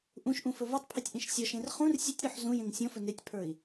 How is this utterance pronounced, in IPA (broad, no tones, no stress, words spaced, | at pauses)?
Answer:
ʔũʃʔũ fɵvotˤpʰetʲ ʔĩʃsʲɔʃẽr χũr sʲetʲɾɔħ zũ jẽŋsʲɔ̃fɵ netʲpʰə˞i̯